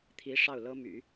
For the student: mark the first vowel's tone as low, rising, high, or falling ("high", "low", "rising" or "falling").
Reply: rising